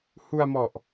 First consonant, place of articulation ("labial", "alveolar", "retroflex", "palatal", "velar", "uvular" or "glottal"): glottal